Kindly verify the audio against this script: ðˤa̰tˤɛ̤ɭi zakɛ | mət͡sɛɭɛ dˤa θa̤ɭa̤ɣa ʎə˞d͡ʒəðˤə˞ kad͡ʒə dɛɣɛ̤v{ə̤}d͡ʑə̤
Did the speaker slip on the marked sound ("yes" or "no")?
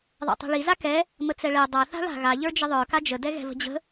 no